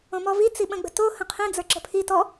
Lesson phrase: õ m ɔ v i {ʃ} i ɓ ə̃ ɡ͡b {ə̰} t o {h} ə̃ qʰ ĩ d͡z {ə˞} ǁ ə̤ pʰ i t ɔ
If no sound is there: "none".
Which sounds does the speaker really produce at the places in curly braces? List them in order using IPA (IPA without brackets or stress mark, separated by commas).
t͡s, ə̤, h, ə˞